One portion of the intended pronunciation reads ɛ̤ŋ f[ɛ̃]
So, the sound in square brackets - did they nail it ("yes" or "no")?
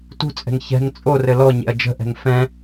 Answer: yes